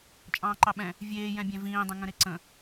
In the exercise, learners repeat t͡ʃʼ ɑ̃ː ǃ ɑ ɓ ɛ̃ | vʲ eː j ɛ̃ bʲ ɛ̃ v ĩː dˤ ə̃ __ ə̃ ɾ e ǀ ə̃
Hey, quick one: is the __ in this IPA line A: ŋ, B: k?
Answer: A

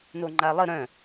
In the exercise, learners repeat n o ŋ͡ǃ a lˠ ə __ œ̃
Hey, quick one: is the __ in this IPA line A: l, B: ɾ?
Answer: B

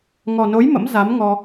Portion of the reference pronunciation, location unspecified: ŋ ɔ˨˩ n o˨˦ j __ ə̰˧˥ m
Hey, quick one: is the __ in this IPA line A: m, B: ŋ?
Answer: A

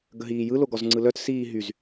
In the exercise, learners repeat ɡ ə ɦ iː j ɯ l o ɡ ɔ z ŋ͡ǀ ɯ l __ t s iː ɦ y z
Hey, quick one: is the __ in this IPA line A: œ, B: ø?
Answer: A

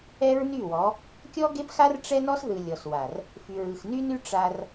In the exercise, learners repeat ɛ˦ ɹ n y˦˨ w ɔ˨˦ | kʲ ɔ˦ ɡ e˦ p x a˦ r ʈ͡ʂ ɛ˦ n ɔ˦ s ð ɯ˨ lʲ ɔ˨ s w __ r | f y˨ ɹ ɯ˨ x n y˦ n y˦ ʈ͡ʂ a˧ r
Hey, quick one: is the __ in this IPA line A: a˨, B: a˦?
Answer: A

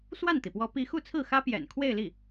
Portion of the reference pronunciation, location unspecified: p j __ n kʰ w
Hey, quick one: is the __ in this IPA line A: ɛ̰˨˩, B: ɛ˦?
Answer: A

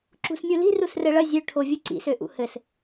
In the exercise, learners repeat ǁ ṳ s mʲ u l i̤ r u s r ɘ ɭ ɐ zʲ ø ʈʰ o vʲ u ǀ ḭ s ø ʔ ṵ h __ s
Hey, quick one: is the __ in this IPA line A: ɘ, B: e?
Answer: A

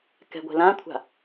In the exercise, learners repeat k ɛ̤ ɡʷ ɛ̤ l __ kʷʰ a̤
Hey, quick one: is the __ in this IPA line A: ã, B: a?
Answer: A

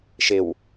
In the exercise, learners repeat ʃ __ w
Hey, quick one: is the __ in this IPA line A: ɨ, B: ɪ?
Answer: B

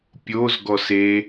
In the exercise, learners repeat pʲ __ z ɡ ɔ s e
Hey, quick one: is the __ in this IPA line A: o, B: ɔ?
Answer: A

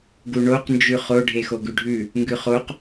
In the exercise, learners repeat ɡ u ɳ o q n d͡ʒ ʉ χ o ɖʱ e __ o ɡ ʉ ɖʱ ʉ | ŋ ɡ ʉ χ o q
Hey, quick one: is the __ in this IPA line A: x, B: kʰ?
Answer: A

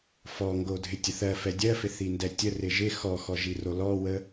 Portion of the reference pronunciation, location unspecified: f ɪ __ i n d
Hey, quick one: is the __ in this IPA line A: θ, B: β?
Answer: A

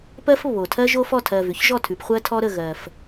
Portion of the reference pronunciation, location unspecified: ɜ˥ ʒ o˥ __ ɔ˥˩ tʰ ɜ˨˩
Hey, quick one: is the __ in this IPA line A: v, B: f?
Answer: B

